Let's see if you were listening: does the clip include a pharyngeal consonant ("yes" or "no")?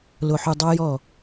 yes